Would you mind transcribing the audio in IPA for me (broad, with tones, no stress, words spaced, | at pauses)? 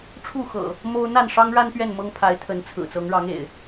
ʈ͡ʂʰu˥˨xɤ̰˨˩ | mo˦ʊ̯ n̪a˥˨nʂɑ˦ŋɻa˦n pɥɛ˥˨nmɤ˦ŋpʰa˨˦ɪ̯ t̪ʰə˨˦nt͡sʰɹ̩˨˩ t͡sɤ˨˦ŋɻɑ˨˦ŋḛ˨˩ɪ̯